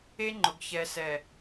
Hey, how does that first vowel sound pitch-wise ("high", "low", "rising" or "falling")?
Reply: high